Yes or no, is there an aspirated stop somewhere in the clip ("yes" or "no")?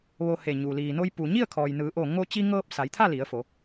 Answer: yes